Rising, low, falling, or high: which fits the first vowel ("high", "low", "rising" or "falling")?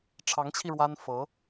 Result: rising